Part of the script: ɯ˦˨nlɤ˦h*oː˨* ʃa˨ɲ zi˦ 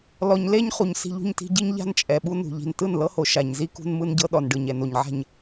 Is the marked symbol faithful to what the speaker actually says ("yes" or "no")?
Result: no